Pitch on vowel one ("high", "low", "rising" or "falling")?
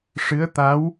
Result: rising